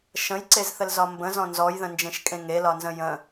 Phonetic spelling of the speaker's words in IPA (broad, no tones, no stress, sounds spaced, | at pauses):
ʃ ə̃ j ǀ e z θ ə l z ɒ m b ə̃ z ɔ̃ n z ɔ j ð ə̃ n d͡ʒ ẽ ʃ kʼ ẽ ŋ e l ɒ n z ə̃ j ə̃